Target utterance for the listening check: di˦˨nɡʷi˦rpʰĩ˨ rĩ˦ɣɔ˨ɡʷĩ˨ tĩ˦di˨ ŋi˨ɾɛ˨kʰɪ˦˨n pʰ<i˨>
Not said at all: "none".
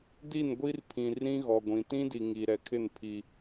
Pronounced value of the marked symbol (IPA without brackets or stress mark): i˦